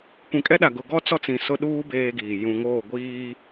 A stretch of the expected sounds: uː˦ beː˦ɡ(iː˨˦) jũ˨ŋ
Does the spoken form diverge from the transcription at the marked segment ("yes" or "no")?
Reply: yes